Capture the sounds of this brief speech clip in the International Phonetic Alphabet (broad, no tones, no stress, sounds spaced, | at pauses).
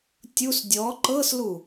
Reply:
tʲ u s dʲ ɔ ǃ ɤ s l u